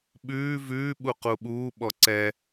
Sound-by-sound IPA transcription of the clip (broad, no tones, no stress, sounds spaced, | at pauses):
ɓ ʉː v ʉː ɓ u q u ɓ uː ɓ ɔ ǀ ɛ